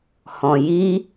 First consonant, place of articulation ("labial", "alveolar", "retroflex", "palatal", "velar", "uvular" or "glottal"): glottal